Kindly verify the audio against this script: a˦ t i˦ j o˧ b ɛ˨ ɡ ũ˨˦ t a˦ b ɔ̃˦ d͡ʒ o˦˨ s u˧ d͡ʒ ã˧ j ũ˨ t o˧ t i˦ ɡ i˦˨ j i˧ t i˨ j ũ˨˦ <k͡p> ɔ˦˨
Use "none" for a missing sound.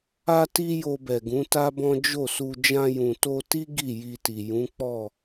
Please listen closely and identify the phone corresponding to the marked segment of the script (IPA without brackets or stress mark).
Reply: k͡p